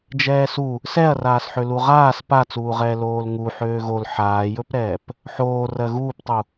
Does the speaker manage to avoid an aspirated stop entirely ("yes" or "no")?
yes